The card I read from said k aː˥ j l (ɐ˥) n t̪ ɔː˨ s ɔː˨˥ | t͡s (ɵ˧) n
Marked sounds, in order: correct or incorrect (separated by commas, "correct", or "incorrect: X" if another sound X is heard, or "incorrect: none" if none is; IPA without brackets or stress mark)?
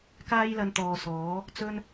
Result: incorrect: ɐ˧, correct